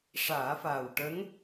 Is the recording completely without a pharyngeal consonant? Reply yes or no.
yes